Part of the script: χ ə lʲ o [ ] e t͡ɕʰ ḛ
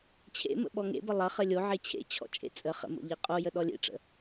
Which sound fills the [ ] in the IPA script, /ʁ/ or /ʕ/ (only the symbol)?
ʕ